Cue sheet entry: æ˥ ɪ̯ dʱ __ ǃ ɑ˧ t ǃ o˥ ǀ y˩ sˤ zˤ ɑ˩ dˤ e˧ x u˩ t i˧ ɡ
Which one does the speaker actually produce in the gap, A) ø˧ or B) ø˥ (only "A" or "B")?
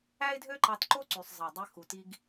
B